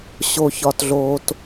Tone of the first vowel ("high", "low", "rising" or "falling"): low